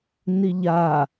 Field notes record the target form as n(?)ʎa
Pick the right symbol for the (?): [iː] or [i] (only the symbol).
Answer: i